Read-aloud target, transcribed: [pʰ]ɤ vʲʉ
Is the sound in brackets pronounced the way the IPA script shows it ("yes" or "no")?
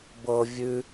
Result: no